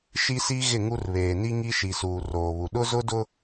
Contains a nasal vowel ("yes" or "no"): no